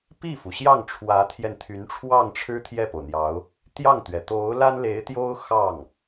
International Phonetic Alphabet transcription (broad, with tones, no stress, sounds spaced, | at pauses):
p i˥˩ f u˩ ɕ j ɑ˥˩ ŋ ʈ͡ʂʰ w ä˧˥ t̪ʰ j ɛ˧ n t̪ʰ y˧˥ n ʈ͡ʂʰ w ɑ˥˩ ŋ ʈ͡ʂʰ ɻ̩˥ t̪ʰ j ɛ˥˩ p o˩ ʊ̯ n̪ j ɑ˧˥ ʊ̯ | t̪ j ɑ˥˩ ŋ t̪ ɥ ɛ˩ t̪ o˧˥ ʊ̯ l a˥ n l e˧˥ ɪ̯ t̪ j o˥ ʊ̯ x ɑ˥˩ ŋ